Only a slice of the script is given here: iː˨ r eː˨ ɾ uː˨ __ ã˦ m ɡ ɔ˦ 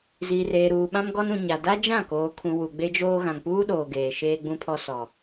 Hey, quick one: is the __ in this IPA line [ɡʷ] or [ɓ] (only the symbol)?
ɓ